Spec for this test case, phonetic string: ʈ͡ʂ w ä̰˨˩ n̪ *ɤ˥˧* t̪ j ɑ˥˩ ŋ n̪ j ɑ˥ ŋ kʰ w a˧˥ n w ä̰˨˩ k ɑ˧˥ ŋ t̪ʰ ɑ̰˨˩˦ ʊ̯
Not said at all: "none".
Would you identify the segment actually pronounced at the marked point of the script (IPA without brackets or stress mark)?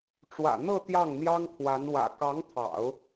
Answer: ɤ˥˧